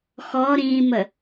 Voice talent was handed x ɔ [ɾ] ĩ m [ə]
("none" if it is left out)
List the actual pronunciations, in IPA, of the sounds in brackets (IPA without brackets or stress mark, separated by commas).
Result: ɾ, ə